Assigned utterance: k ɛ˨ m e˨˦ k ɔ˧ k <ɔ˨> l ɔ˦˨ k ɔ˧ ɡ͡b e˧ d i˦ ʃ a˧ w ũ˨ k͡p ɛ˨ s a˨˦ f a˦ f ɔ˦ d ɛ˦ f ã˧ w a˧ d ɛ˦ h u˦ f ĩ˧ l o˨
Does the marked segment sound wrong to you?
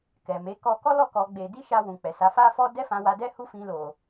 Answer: yes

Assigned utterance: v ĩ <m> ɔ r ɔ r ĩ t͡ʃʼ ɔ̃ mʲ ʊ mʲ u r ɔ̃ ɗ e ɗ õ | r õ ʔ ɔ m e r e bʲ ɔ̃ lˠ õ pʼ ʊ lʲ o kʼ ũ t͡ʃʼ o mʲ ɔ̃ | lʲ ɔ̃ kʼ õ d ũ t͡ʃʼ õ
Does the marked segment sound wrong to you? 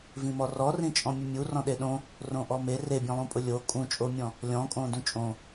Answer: no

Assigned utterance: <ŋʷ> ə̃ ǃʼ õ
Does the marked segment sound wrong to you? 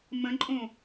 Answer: yes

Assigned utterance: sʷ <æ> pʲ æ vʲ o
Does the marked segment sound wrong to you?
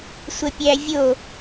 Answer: yes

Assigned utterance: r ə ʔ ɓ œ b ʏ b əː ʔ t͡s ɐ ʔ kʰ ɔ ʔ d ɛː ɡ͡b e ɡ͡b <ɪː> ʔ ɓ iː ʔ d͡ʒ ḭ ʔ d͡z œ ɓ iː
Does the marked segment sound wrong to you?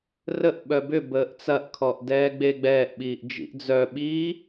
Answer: yes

